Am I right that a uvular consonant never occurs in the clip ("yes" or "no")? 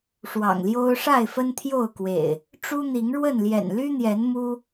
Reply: yes